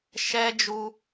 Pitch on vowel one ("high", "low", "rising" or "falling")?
high